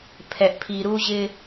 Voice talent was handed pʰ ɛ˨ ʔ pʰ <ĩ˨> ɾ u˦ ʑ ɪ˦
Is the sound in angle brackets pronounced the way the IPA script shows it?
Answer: no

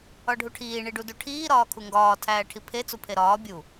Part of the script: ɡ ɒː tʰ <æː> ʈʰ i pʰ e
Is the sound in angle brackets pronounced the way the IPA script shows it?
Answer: yes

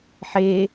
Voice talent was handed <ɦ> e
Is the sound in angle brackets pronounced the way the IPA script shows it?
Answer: no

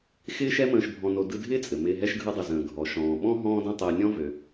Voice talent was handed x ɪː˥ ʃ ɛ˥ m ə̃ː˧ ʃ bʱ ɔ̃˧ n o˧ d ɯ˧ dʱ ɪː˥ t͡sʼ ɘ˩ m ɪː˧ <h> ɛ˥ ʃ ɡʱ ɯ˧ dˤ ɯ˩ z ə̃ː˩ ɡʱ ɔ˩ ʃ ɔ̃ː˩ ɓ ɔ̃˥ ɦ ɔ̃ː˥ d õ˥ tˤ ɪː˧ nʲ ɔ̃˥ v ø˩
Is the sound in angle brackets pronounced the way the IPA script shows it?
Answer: no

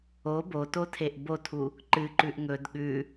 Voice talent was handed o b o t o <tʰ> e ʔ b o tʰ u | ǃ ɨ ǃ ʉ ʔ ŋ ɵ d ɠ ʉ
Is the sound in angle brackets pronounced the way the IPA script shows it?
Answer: yes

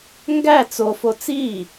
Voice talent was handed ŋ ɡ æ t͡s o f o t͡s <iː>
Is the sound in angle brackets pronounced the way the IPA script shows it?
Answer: yes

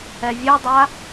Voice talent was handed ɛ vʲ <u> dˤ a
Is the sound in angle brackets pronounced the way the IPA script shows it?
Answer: yes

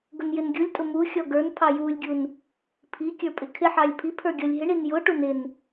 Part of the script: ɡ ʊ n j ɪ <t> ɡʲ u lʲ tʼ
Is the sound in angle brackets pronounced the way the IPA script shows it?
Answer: no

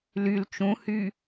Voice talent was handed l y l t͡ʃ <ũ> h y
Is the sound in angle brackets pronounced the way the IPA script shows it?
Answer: yes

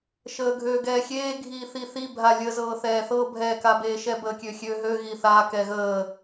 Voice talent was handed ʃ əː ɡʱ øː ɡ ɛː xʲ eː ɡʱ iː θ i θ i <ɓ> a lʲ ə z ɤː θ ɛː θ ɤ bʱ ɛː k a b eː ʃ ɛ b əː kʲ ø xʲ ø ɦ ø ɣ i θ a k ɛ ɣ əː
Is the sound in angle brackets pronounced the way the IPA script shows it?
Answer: no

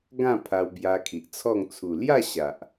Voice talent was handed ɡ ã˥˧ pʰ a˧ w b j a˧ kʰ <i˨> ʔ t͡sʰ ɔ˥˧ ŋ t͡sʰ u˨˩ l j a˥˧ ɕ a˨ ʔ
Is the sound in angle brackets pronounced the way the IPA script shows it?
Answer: yes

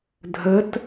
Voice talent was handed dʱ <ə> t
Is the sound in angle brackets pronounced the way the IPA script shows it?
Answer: yes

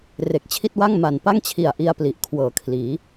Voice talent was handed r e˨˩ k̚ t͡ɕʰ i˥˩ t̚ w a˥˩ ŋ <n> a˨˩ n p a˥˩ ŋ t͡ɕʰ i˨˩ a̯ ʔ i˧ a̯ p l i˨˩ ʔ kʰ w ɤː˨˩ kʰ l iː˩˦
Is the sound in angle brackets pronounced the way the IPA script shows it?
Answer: no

